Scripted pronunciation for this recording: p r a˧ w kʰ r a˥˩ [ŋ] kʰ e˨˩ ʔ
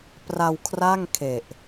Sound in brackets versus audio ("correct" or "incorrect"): correct